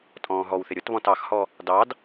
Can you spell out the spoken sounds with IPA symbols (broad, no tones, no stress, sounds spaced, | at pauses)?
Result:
tʼ ɔ̃ː ɦ ɔ w θ ɪ ɾʲ ʊ t β ɔ̃ t ɑ x h ɔ | d ɑ d